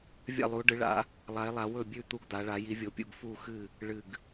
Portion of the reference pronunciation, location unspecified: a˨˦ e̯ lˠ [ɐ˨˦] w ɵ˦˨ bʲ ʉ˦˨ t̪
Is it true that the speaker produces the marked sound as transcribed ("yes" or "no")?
no